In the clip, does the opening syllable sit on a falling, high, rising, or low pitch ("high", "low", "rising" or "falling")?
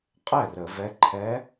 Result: falling